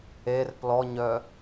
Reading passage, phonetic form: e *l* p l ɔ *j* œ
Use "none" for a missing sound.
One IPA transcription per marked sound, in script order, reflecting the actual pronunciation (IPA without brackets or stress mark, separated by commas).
r, ɲ